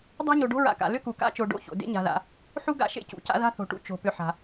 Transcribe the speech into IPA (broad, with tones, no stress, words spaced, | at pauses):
dˤa̤˥ɲo˨ɖo̤˥ ɹa̰˨ka̰˩ lʏ˥ku˩ ka̰˥t͡ʃo˨ ɖo̰˥ço̰˩ dḛ˥ɲa̤˨ða̰˨ | ħu˥ɡa̰˦ʃḛ˥cṵ˩ ca̰˦ða̤˥θo̤˨ʈṵ˥ t͡ʃo̤˩pʏ˨ħa̤˩